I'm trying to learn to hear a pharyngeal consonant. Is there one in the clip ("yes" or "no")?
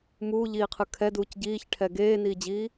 no